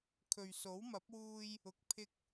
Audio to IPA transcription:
kʰ ɵ˨ ɥ s o˨˥ w m ɐ˨˥ p̚ w uː˧ j | ʊ˨ k̚ pʰ ɪ˧ k̚

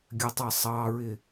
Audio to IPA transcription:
ɡʲ ɜ tˤ ɑ sˤ ɑ ɹ ɪ

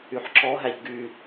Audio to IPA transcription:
y ħ ǁ ɔ ɦ æ ʎ ɡ y

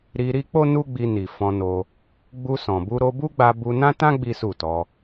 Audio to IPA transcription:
ɾ i˧ ɾ i˦ k͡p o˦ n u˦ ɡ͡b i˧ n i˨ f ɔ̃˧ n o˧ | ɡ͡b u˧ s ɔ̃˨ b u˧ ɾ o˧ b u˦ ɡ͡b a˧ b u˧ n ã˦ t ã˦ ɡ͡b i˦ s u˦˨ t ɔ˧

